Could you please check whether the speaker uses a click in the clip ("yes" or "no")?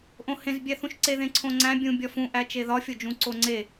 yes